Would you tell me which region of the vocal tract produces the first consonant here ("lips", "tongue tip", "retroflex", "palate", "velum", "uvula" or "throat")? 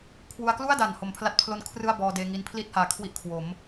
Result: velum